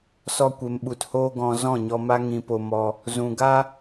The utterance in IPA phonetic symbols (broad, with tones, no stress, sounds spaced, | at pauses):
s ɔ˧ kʷ e˨ m ɓ u˨ t h oː˦ ɡ ɔ̃˧ z ɔ̃˦˨ ɲ ɔ˧ m a˦ ŋ ĩ˧ p o˧ m ɔ˧ | z ũ˨ ɡ a˦